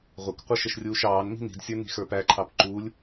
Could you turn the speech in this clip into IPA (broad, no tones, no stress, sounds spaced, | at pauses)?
ʁʷ ɪ k qʷ ʌ ʃ ə ʃ rʲ uː ʃ ɑː n m i̤ n i̤ d sʲ ə˞ n i̤ x ə˞ p æ ǃʰ ɑ p ǃ uː lʲ